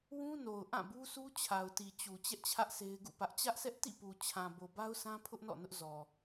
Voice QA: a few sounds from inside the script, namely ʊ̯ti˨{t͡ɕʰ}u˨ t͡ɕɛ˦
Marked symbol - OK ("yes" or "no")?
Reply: no